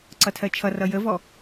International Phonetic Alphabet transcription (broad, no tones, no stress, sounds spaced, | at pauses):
ǀ ʌ tʰ ɜ t͡ʃʰ ʌ r ʌ j ə v ɔ